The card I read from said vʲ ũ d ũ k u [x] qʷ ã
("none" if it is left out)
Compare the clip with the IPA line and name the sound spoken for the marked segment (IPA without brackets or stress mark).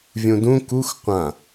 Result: x